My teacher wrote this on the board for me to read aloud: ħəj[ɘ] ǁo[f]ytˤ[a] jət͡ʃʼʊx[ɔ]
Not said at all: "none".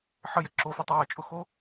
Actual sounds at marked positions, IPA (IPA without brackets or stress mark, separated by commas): ɘ, f, a, o